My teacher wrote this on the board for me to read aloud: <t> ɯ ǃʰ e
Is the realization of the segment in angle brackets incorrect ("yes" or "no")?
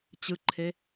yes